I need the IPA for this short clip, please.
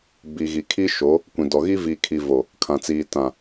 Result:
b i˨ ɣ i˨ kʰ i˦ ʃ o˨˦ | kʷ ĩ˨ d ɔ˨ ɣ i˦ v iː˨ kʰ i˨ v o˨ | kʰ ã˨ t͡s iː˨ t ã˨

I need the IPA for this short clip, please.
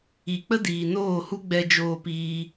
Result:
i˨ k͡p ə˦ d iː˨ n oː˦˨ h u˦ ɡ͡b ɛ˦ d͡ʒ oː˦ p iː˦

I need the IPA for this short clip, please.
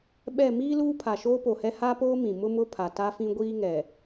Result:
ɓ ɛ˦˨ m iː˦ l uː˦ pʰ a˨ ʃ oː˦ p o˨ h ɛ˦ h a˦ p oː˦ m ĩ˨ m ʊ˦ m ʊ˦ pʰ a˨ t a˦ f ĩ˦ ɡʷ iː˦ ŋ ɛ˨

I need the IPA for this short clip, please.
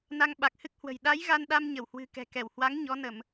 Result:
n a˧ ŋ ɓ a˨˩ k̚ h ɨ˦˥ k̚ h w ə̤˨˩ j ɗ a˨˦ j ɣ a˧ n ɗ a˧ m ɲ ə˧˩ w h w ɨ̤˨˩ k ɛ̤˨˩ k ɛ˧˩ w h w a˨˦ ŋ ɲ ɔ˨˦ n ə˧˩˨ m

